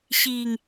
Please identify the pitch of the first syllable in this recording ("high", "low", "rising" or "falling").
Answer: low